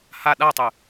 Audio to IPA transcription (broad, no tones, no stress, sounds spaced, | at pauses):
h a ɗ a tˤ ɨ